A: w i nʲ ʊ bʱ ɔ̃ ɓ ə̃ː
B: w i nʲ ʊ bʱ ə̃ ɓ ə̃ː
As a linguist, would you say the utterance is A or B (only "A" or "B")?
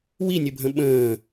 B